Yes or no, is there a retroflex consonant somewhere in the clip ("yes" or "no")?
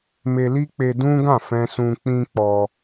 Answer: no